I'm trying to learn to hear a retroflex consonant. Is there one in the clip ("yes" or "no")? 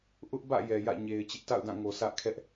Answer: no